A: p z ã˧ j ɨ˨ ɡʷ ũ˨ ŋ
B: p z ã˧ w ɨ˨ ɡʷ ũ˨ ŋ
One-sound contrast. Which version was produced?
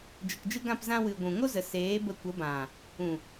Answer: B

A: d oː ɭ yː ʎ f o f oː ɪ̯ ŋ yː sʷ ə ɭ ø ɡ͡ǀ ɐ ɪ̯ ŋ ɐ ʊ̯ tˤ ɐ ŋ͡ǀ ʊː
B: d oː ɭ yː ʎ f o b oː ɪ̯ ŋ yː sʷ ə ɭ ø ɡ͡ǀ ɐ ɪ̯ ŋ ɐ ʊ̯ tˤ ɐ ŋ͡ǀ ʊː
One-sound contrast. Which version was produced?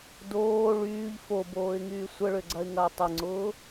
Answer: B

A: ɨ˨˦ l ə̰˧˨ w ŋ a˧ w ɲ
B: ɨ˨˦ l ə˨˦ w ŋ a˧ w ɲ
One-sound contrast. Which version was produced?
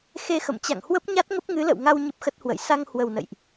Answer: A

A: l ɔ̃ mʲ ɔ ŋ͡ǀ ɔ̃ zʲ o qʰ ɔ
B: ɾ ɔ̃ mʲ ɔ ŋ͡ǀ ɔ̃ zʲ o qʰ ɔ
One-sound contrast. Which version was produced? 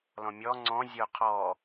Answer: A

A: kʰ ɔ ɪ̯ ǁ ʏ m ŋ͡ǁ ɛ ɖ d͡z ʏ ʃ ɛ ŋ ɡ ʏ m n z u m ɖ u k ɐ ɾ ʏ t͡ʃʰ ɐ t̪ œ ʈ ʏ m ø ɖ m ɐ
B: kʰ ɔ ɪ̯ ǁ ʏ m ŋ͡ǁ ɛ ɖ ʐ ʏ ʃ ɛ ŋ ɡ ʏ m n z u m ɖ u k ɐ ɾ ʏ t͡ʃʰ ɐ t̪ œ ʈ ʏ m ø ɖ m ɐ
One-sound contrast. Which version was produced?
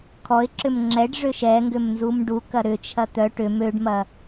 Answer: B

